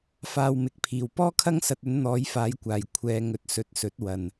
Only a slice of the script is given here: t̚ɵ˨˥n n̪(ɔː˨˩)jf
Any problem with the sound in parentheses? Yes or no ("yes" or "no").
yes